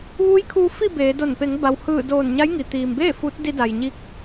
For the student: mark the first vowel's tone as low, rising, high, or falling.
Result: rising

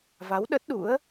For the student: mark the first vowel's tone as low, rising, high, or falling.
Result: rising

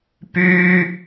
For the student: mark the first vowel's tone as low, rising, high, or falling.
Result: high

